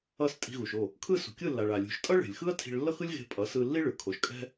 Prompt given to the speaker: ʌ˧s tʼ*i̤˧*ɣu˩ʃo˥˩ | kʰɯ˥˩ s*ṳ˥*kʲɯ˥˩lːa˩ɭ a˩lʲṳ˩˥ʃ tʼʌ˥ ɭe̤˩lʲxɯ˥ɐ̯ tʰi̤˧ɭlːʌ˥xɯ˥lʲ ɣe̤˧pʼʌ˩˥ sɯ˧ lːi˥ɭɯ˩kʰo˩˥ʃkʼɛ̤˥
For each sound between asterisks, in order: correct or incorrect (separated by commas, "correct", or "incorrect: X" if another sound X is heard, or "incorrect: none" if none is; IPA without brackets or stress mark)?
correct, incorrect: ṳ˩